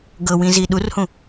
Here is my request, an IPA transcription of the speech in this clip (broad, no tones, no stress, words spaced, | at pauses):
ɡɤwĩzi ɗurhũ